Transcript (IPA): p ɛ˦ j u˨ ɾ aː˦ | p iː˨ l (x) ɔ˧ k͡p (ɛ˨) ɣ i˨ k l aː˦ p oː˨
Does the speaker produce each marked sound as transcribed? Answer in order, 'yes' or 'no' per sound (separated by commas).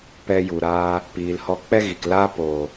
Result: no, no